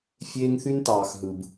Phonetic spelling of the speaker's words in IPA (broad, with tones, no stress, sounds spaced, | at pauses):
fʲ eː˦ ŋ θ y˦ n t ɑː˨ x ɦ ɯ˨ b